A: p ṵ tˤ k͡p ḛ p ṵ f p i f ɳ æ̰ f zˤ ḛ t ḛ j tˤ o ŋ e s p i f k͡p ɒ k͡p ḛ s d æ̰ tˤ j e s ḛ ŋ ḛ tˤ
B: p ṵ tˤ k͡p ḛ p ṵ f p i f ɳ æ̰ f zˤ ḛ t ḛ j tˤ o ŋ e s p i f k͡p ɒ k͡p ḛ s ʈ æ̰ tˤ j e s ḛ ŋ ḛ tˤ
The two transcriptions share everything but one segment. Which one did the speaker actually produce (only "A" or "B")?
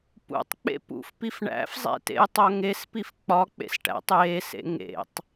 B